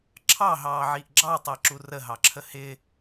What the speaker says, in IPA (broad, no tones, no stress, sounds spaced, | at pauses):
ǁʰ ɑ ɦ ɑː ʕ i ʔ ɡ͡ǁ ɑ tˤ ɛ ǁ u r ə ɦ ɑ ǁʰ ə h ɪ